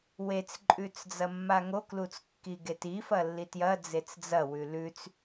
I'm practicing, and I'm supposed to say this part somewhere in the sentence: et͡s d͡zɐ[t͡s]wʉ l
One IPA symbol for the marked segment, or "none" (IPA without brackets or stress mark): none